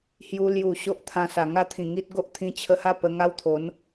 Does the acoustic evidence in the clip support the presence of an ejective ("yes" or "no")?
no